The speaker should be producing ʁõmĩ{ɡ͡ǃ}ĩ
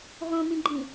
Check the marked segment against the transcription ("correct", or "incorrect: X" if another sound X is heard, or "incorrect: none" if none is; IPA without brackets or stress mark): correct